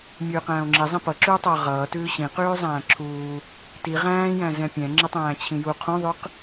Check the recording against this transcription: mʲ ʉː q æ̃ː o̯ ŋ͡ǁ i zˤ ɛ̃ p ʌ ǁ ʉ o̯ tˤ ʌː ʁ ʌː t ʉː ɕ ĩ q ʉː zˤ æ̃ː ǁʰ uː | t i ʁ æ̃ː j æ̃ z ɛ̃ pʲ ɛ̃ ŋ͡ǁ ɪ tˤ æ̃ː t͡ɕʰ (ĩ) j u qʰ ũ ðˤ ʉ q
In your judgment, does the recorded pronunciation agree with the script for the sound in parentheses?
yes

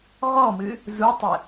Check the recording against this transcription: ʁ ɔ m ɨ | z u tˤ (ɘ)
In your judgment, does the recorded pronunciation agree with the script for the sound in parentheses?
yes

